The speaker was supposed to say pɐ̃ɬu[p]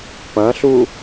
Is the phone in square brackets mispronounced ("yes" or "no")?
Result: yes